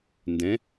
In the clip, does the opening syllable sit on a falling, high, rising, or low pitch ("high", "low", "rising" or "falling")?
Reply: rising